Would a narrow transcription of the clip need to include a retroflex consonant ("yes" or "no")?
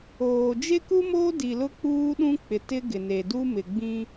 no